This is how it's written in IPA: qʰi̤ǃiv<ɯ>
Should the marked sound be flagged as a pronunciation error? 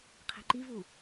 yes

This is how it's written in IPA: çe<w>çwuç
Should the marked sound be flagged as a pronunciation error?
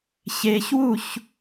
yes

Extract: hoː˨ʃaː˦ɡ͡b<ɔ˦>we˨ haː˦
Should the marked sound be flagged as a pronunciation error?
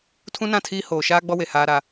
no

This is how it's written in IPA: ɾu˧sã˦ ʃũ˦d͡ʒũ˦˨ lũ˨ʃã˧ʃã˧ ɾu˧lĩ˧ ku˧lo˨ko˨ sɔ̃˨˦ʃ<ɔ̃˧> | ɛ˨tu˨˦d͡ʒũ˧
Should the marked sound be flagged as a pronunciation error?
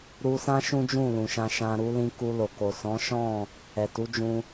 yes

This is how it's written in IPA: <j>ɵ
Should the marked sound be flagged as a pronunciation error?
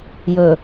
no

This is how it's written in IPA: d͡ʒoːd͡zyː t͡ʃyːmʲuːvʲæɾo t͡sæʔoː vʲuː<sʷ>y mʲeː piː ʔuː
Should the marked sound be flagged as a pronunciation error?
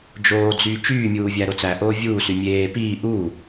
yes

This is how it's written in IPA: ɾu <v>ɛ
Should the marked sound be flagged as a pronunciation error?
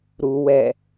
yes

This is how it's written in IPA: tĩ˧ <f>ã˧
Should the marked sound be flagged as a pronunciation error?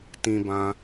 yes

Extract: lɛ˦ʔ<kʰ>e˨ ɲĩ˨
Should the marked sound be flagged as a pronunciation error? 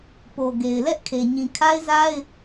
no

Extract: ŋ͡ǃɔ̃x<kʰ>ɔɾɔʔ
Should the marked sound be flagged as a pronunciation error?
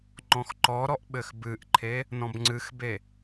yes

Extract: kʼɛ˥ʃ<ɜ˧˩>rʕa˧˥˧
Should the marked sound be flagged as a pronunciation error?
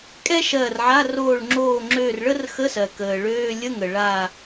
no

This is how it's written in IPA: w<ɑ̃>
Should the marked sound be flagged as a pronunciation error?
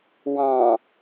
no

